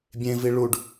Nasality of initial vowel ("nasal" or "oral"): nasal